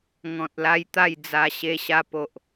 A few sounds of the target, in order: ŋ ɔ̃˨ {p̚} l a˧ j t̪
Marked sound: incorrect: t̚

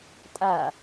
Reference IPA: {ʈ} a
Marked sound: incorrect: tʼ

